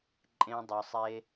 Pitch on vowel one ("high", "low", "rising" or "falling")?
high